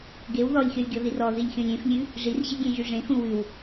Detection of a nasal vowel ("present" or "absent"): present